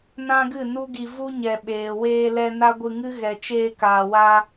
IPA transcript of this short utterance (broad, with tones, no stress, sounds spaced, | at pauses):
n ã˦ ɡ ɨ˦˨ n u˦ ɡ i˧ v u˦ ɲ ɛ˨ ɓ eː˨ w eː˧ l ɛ˧ n a˦ ɡʷ ɨ˧ ŋ ɨ˦ ɣ ɛ˨ t͡ʃ eː˧ k aː˨ w a˧